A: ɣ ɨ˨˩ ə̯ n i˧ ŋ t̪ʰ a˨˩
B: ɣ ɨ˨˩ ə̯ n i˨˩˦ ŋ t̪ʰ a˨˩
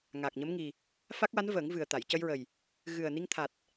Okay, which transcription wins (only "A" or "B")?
A